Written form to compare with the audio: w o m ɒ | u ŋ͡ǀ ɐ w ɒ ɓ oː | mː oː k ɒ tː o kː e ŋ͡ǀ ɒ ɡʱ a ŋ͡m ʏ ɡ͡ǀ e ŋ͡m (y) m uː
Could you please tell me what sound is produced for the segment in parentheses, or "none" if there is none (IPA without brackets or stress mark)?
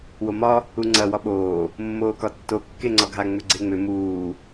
ʏ